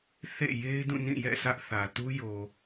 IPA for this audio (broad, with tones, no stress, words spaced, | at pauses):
θḛ˦˨ je˦ɪ̯dũ˦˨nĩ˦˨ jɛ̰˦˨ sä˦ʔθä˨ tu˦jo˨